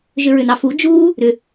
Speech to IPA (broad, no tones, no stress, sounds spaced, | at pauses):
ʒ ʏ ɹ ʏ n ɑ f u d͡ʒ uː | ɾ ʏ